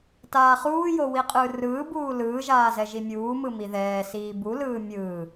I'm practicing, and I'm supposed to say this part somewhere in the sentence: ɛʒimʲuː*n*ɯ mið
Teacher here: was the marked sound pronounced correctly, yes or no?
no